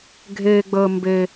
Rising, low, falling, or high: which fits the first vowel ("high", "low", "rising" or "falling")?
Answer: high